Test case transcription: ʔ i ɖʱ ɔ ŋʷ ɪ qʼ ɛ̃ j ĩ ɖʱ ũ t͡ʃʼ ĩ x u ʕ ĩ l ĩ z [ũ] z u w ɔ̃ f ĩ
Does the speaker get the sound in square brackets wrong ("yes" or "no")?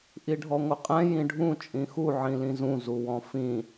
no